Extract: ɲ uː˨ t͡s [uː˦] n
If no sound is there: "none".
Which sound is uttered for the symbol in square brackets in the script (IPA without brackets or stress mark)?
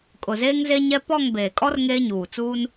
uː˦